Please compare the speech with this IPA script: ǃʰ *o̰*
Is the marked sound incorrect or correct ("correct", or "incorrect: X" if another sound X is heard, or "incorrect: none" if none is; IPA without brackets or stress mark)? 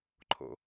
correct